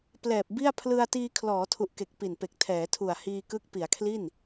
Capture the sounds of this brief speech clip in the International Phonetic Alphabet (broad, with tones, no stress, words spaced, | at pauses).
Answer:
plɛː˨˩p̚bi˥˩a̯ pʰlɯ˧a̯ tiː˧ kʰlɔː˩˦tʰu˨˩ʔke˨˩k̚ pi˨˩n pe˨˩k̚ tʰɛː˩˦tʰu˨˩a̯ hiː˧kɯ˦˥k̚ pi˩˦a̯kʰli˥˩n